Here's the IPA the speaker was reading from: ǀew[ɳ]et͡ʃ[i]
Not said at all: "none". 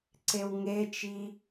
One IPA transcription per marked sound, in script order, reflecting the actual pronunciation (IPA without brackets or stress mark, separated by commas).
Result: ŋ, i